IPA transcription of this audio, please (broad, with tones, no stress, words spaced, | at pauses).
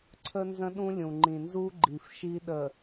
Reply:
ǀʰə˦ nzə̃˦ɗũ˦lʲũ˨ ŋ͡ǃĩ˨nzu˦ ɡ͡ǃi˨fʃi˦ ɗə˨